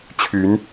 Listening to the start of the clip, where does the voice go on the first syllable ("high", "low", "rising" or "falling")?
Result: rising